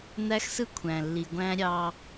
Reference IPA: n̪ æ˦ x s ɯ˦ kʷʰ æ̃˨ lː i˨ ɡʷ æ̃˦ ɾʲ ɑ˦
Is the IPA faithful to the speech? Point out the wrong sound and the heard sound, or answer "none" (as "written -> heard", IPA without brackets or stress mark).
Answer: none